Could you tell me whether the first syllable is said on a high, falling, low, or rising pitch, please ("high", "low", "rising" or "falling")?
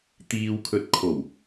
low